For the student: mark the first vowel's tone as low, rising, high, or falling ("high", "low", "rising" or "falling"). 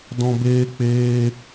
high